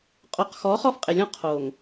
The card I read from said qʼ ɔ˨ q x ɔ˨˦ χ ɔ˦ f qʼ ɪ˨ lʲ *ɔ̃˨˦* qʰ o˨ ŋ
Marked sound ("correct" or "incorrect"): incorrect